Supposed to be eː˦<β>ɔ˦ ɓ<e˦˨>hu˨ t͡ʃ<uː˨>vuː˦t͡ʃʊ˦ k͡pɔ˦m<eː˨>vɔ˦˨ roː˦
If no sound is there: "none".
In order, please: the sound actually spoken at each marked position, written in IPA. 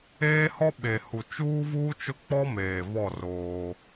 h, e˨, uː˦, eː˨

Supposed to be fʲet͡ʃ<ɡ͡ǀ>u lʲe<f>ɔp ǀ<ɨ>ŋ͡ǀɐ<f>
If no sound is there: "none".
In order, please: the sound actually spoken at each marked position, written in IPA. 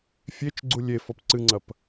ɡ͡ǀ, f, ɨ, p

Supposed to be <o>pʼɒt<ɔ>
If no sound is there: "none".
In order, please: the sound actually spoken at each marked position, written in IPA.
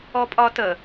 ɔ, ə

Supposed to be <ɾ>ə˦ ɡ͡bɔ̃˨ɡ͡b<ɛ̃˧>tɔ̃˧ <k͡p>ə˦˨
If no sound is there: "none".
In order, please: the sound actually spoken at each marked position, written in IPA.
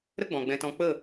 ɾ, ɛ̃˧, k͡p

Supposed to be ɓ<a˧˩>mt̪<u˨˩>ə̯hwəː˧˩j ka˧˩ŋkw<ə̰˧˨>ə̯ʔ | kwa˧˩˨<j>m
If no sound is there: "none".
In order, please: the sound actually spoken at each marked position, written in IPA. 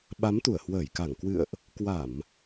a˨˦, u˧˩, ɨ̰˧˨, none

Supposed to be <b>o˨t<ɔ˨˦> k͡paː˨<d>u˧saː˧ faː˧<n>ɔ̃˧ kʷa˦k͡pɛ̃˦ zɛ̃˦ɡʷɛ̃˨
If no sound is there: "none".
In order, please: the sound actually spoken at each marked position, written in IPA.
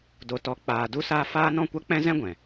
d, ɔ˨, d, n

